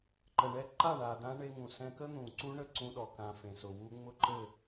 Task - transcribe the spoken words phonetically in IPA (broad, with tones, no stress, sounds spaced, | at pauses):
ǃ ə˨ ɳ ɛ˦ ǃ a˦˨ ɳ a˨ d ã˧ ɳ e˧ ŋ ũ˨ s ɛ̃˧ k ə˦ n̪ ũ˨ ǀ u˦ ɳ ə˧ ǀ ũ˧ ɗ ɔ˨ k ã˨ f ẽ˨ s ʊ˨ w u˧ ŋ͡m ʊ˦ ǃ ɘ˦˨